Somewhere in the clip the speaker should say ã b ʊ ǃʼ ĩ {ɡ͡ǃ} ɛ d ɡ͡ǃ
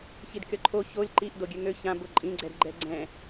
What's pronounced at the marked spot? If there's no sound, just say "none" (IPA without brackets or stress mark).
ɡ͡ǀ